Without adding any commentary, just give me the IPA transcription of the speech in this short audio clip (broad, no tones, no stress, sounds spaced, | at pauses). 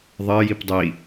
ðˤ ɜ j i p dˤ i